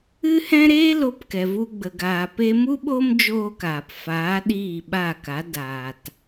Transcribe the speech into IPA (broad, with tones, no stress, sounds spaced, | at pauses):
ɨ˦ h ɛ̃˦ ɾ eː˦ l o˧ p k ɛ˨ v u˧ ɡ͡b ə˨ ɡ aː˨ p e˧ m u˦ ɓ o˦ m d͡ʒ oː˧ k aː˨ p f aː˨˦ ɗ iː˦˨ ɓ a˦˨ k a˨˦ d aː˨ t